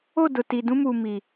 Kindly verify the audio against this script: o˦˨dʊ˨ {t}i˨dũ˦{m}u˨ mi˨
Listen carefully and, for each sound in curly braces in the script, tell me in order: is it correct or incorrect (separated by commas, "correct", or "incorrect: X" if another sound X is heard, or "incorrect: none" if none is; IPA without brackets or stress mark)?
correct, correct